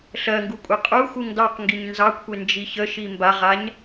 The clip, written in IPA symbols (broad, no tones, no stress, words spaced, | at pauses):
ɬɜŋɡu kʷʼeqʼuxuŋ dɑqŋɡiɲ nzɑkʷʰe nd͡ʒiçəʃi mbaʁaɲ